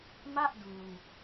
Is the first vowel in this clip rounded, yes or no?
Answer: no